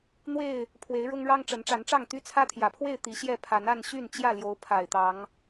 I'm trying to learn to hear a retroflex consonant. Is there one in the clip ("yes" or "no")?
yes